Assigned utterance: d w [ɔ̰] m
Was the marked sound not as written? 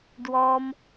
yes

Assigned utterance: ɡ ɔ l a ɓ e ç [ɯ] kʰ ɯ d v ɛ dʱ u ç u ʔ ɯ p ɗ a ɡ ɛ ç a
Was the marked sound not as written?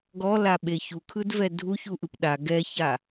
yes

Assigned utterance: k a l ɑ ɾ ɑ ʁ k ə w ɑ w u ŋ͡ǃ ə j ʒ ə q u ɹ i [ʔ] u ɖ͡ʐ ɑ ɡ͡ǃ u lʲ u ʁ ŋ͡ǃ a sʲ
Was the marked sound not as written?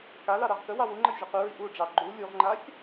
no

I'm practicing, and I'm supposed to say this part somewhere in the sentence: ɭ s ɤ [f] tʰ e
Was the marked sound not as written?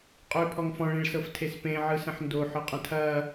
no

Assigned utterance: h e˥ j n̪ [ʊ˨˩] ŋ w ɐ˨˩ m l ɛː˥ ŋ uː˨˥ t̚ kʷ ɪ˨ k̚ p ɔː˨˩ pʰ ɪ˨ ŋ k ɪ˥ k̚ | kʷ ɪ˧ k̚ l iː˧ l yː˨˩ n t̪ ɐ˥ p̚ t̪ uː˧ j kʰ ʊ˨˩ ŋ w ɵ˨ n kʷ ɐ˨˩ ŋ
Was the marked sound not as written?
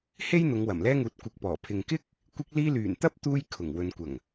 yes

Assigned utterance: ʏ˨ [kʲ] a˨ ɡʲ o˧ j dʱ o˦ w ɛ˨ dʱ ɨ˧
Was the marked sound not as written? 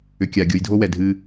no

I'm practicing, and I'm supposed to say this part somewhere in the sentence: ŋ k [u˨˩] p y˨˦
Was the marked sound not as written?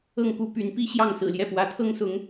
yes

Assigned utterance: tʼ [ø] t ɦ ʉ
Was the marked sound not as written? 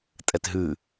yes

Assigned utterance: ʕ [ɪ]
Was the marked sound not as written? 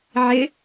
no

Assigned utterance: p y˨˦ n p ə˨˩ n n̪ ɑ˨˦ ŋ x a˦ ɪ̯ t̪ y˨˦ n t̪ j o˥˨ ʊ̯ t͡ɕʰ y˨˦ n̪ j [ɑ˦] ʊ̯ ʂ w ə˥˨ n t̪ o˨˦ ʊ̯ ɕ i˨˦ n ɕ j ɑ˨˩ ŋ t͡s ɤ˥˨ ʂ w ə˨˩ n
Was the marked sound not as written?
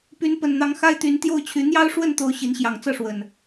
no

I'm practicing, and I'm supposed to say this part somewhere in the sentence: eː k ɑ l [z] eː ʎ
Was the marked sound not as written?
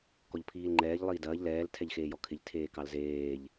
no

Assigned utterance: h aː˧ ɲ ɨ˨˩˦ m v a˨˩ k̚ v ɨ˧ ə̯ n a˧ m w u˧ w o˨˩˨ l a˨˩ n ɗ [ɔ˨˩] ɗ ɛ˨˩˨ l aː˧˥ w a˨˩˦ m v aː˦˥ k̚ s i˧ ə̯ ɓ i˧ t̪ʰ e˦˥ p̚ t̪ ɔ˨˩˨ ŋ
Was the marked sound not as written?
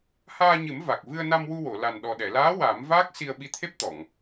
no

